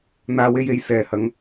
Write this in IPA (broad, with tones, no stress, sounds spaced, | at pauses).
n̪ aː˧ w e˧ j e˨˧ j s ɛː˨ h ɐ˧ ŋ